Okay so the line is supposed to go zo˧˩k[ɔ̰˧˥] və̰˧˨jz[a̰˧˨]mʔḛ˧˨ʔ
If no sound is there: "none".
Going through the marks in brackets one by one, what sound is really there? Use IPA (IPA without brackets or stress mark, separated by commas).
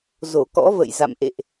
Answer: ɔ̰˧˥, a̰˧˨